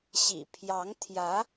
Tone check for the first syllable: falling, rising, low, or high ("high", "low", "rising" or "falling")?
low